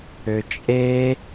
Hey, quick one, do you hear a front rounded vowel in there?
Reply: yes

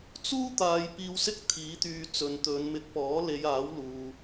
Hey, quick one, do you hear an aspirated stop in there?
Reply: yes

